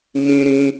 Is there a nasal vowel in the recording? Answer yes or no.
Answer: yes